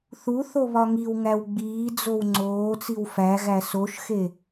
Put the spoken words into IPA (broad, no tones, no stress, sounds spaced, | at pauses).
θ u θ o β ɒ ŋ i w ŋ æ w ɡ͡b iː d͡z o w ŋ͡ǀ oː t͡s i w f æ ɣ æ s o ʃ x e